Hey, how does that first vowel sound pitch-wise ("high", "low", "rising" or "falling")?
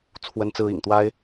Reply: high